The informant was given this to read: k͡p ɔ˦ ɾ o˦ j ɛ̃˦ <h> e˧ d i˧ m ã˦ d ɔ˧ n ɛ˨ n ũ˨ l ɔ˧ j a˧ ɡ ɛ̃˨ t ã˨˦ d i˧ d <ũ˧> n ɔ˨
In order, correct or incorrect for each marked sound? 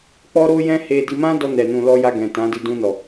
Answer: correct, correct

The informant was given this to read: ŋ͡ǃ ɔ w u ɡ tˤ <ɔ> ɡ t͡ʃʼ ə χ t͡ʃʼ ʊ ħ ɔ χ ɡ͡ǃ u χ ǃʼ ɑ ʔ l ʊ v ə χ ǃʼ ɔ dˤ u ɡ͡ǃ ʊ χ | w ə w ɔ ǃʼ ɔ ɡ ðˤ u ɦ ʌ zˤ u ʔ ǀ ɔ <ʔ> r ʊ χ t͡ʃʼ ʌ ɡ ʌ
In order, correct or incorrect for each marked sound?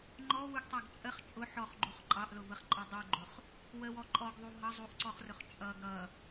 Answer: incorrect, incorrect

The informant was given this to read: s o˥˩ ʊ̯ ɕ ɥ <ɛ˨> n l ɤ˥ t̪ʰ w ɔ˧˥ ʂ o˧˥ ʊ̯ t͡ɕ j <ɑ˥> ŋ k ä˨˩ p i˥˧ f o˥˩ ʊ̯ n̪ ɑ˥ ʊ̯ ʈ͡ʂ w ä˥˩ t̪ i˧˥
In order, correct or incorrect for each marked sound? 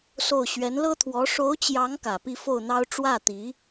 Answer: incorrect, incorrect

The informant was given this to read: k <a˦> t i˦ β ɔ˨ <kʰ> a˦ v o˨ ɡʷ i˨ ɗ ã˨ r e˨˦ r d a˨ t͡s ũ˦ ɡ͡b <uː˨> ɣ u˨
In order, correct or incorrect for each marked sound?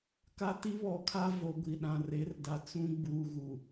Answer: correct, correct, correct

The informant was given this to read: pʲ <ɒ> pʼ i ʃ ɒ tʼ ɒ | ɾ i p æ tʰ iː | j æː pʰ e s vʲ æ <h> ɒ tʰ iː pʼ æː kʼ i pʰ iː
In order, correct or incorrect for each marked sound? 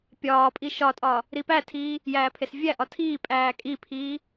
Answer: incorrect, incorrect

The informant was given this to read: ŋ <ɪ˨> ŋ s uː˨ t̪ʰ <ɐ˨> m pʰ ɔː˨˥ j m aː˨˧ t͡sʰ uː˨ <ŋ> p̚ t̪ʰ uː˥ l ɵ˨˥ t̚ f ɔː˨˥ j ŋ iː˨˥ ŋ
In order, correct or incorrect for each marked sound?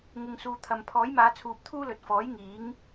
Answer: correct, correct, incorrect

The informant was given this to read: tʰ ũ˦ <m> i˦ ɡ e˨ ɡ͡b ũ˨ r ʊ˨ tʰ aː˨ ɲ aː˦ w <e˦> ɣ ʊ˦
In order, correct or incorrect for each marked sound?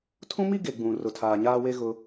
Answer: correct, correct

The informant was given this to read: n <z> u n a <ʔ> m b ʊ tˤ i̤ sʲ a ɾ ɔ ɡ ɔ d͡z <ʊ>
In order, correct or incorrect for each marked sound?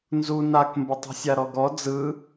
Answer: correct, incorrect, incorrect

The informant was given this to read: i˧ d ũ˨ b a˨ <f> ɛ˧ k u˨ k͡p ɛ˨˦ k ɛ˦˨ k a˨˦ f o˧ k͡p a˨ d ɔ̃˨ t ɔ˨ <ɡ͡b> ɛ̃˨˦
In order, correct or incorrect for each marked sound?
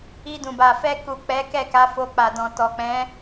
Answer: correct, incorrect

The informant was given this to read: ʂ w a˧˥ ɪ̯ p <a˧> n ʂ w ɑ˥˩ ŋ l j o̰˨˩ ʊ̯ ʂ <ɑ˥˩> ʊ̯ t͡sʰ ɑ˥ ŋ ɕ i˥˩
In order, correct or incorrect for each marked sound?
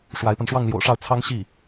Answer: correct, correct

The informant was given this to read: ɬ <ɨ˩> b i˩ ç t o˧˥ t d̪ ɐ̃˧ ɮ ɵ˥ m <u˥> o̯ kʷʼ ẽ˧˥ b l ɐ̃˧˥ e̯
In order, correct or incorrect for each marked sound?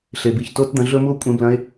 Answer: incorrect, correct

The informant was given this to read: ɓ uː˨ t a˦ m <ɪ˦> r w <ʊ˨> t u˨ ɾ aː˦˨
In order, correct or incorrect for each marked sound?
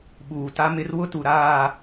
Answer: correct, incorrect

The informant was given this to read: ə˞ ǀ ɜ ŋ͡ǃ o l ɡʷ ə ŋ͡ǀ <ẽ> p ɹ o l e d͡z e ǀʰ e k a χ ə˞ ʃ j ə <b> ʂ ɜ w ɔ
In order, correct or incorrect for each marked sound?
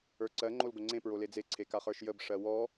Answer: correct, correct

